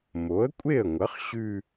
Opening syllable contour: rising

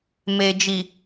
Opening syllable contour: low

